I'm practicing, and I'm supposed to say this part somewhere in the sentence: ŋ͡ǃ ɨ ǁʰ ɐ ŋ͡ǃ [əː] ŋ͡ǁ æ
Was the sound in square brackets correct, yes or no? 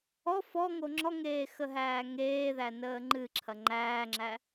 no